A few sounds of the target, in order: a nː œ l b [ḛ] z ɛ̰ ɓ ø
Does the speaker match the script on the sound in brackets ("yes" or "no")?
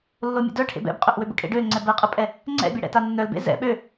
yes